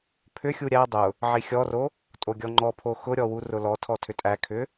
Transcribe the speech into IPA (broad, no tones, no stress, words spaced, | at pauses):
pʰʏxʲu ɾʲæ dˤʊ | ʕixʲɔro | tʼoɡʲɔŋ͡ǃɔpʰo xʊɾʲɔ wurʊlɔtʰɔ tʰʏtʼækʰʏ